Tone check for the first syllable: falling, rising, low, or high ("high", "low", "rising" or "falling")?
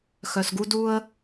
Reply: low